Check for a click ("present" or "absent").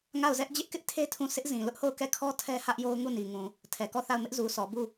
absent